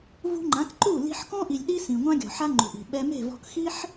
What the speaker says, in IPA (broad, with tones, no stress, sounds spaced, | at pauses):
v ṳ˦ ŋ͡ǃ ã˨˦ k ǃ u˦˨ l i̤˧ ħ k ɔ̃˦ ʔ i˨ lʲ ɗ i˦ s ĩ˨ ŋʷ ã˦ ɡʲ ɔ̤˨ ħ a˦ ŋ͡ǃ ṳ˨ ʔ i̤˨ ɓ ɛ˧ m e̤˦˨ v ɔ̤˧ k x i˦ ħ